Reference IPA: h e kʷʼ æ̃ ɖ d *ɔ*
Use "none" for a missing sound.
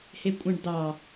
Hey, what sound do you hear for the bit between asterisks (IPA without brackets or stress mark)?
ɑ